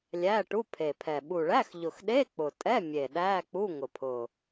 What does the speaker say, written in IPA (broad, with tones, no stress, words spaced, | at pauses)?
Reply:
lʲæ˧˥˧ʈu˧˥˧pʰe˨˩pʰɛ˨˩ ɓu˨˩ɭæ˧˥˧x ʎʊ˨˩xɗe˧˥˧ k͡pʊ˨˩ tʼɛ˧˥˧mʲe˨˩ ɗæ˧˥˧k͡pu˧˥˧ ŋʊ˨˩pʰʊ˨˩